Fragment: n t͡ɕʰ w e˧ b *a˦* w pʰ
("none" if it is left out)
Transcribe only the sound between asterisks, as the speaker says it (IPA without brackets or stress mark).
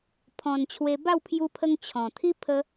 a˥˧